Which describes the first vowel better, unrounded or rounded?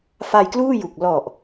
unrounded